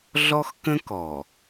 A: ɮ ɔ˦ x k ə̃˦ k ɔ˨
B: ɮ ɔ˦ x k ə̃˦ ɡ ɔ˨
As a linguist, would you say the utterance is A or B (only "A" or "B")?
A